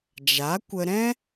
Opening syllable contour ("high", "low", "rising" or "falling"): rising